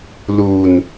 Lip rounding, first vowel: rounded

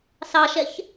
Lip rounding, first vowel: unrounded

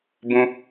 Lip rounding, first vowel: rounded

